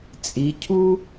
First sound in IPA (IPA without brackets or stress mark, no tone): t͡sʼ